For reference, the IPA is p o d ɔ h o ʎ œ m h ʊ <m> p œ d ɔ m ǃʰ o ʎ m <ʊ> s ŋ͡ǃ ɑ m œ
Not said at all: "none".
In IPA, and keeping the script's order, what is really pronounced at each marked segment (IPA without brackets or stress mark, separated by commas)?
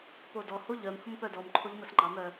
m, ə